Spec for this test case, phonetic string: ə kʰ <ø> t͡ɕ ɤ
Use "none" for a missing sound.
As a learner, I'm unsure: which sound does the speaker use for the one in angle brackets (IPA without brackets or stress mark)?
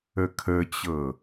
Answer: ə